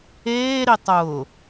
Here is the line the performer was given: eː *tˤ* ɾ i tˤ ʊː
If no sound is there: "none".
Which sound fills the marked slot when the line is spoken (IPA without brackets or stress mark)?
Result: none